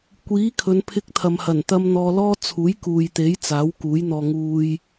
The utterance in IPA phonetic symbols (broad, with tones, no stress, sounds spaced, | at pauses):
kʷ iː˨˥ kʰ ɵ˨˧ n pʰ ɪ˧ k̚ t̪ʰ ɐ˨ m h ɐ˨˩ n t̪ ɐ˧ m n̪ ɔː˧ l ɔː˥ t͡sʰ uː˨˥ j k uː˨ j t̪ e˨˥ j t͡s aː˨˥ w k uː˨˥ j n̪ ɔː˧ ŋ uː˧ j